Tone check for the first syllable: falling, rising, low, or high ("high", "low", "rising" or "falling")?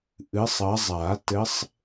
rising